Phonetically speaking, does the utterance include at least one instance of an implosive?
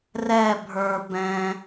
no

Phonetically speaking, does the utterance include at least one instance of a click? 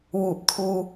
no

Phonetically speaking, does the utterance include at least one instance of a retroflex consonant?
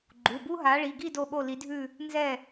yes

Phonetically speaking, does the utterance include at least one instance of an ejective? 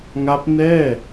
no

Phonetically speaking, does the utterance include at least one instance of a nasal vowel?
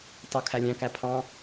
yes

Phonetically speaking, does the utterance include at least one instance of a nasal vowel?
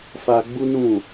yes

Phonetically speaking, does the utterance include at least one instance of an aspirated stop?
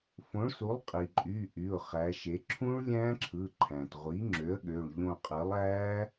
yes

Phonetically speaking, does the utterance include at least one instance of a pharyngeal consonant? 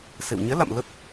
no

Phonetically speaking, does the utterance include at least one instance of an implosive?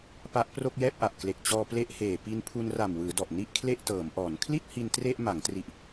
no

